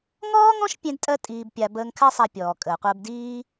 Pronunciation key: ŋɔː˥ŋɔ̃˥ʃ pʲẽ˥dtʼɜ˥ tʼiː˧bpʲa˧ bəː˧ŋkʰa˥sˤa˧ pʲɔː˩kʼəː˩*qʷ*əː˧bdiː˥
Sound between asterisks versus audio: correct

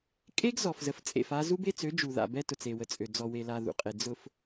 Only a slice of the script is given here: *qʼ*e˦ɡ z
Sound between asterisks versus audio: incorrect: kʼ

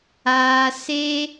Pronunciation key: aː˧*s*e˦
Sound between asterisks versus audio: correct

